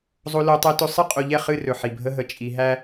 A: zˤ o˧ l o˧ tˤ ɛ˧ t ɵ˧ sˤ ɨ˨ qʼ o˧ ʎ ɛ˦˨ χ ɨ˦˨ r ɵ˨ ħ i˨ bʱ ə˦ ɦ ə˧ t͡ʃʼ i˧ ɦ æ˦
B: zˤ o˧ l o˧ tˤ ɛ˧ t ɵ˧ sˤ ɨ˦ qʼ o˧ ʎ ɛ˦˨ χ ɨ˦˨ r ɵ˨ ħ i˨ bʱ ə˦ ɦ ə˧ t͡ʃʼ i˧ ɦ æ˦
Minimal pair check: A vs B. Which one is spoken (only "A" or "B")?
B